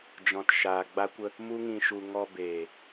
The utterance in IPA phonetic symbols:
d͡ʒɔ̃˨tʃaː˨ ɡ͡ba˧kʷə˧ | mu˦ŋĩ˧ʃu˧ ŋɔ˧beː˨

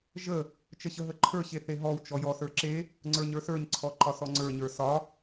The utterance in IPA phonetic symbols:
ʒə | t͡ʃəɕəɦəǃʰə˞ ɕeθeɦɔw t͡ʃɔjɔsə˞ǁe | ŋ͡ǀə˞ɲə˞sə˞ɲ ǀʰɔǃɒsɔŋ͡ǀə˞ ɲə˞sɒ

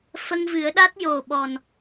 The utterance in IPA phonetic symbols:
fə˧ŋvɨ˨˩˦ə̯ ɗa˦˥t̚jo˨˩ɓɔ˨˩n

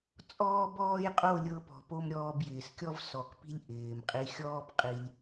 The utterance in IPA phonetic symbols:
t͡sʼɔː˦bɔː˦j qʼo˦˨lʲɤ˧pɔ̤˨po˧m ɾʲɔː˧bjɪː˨skʲɔ˦v sɔ˨kpi̤˦lʲ ʔɪː˨mqʼi˧ xʲɔː˦bqʼi˧lʲ

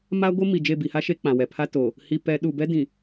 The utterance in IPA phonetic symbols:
ma˦ ɡʷɪ˦ mi˨d͡ʒe˦˨ bi˨ha˦ ʃe˦ k͡pã˨wɛ˨ pʰa˦toː˨ | hi˨ pɛ˨˦ ɗu˨bɛ˦dĩ˨

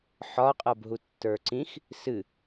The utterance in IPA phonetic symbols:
ħɒqʼɤbɦu tːə˞ǀĩx | sɨ

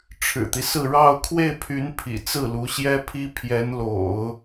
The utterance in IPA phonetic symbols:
ʈ͡ʂʰɻ̩˨˩t̪i˦sɹ̩˥˧ ɻɑ˥˧ʊ̯ kʰwe˥˩ɪ̯pʰy˧˥n pʰḭ˨˩ t͡sɹ̩˥˩lu˧˥ ɕjɛ˥pʰi˥ pʰjɛ˧˥nlo̰˨˩˦ʊ̯

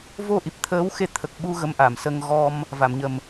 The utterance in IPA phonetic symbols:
vo˧ ʔi˨˩p̚t̪ʰəː˧˥wxe˧ t̪ʰə˨˩k̚ɓu˧ ɣə˧˥mʔa˨˩˨msə˧ŋ ɣɔ˧m | va˨˩˨mɲə˨˩m

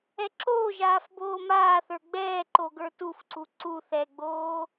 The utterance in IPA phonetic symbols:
ɛǁoːʒaːf boːmaːθə˞ ɡ͡bɛːǃo ɡə˞tufǀu ǀu θɛɡ͡boː

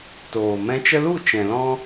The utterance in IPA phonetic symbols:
toː˨mɛ̃˧t͡ʃə˦ lu˦˨ t͡ʃɛ̃˨lɔ̃˦

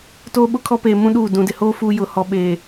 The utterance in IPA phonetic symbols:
toː˦ɓʊ˦kʰɔ˦peː˨ mũ˦ɗuː˦˨ dũ˨dɪ˨hoː˦ fu˦ jʊ˨ hɔ˨ɓeː˨

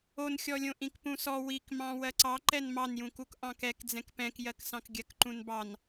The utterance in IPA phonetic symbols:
onxʲɔlʲõ ʔĩkpũsɔ wikmɑ̃ wɜǀɑǃɛn mɑnjũkuk ʔɑ̃kɛk d͡zɛ̃kpɛ̃kjɜksɑ̃k ɡʲɜkǃũnbɑn

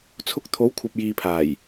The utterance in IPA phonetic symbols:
t͡sʰʊ˧k̚t̪ʰo˨˥wkʷʰɐ˨p̚ jiː˨pʰaː˨˩j

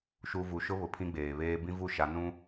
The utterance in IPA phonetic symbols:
ʃu˨ vu˨ʃʊ˦βʊ˨ pʰĩ˦ɡ͡beː˨βeː˦ bĩ˦vu˦˨ʃa˨˦ nũ˦

